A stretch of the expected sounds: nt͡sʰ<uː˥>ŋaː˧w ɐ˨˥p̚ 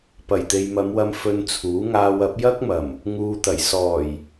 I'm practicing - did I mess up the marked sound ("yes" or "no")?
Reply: yes